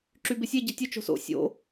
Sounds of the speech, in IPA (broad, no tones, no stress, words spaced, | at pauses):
ǁybɪsʲe ɟetʲo t͡ʃo̤so̰ sʲo̰